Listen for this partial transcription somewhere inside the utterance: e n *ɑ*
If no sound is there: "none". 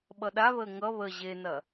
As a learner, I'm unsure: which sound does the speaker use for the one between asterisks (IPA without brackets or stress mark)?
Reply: ɐ